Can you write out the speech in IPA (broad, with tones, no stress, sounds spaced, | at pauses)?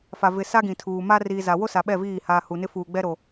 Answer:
f a˨ v ɪ˨ s a˦ ɡ ĩ˨ tʰ uː˨ m a˦ r iː˨ z a˨ w o˦ s a˨ ɓ ɛ˦˨ v iː˦˨ h aː˨ h u˨ n ɪ˦ f uː˨ ɡ͡b ɛ˦ ɾ o˨